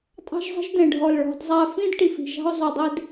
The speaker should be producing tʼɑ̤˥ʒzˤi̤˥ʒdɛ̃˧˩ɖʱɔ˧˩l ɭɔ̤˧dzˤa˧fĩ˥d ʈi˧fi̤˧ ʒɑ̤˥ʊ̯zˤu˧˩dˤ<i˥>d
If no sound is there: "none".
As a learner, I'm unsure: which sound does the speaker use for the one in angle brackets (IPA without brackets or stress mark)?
i˥